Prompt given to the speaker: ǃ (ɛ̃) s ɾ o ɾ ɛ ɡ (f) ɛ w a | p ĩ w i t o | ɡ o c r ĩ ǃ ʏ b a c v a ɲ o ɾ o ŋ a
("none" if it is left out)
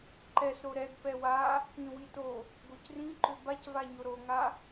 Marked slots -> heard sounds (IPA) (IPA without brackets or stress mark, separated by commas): ɛ, p